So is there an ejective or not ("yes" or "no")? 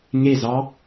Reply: no